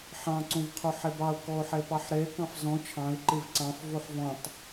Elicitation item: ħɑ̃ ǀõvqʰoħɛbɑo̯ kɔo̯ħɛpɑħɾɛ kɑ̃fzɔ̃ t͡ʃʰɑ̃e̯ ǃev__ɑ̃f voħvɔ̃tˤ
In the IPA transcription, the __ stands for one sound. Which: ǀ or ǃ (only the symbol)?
ǀ